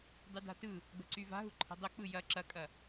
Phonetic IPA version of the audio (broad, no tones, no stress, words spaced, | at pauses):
dˤyda̤tɯ | ɡ͡bə̤ǀyva̤ɦu ǃʰə̤dˤɵ k͡pɯjɐ ǁɐkʼɐ